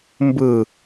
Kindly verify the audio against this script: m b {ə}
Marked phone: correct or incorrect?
incorrect